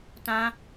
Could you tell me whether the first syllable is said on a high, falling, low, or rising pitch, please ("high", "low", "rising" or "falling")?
high